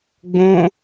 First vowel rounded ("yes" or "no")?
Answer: yes